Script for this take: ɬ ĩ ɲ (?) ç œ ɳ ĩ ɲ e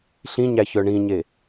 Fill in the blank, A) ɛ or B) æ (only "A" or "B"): B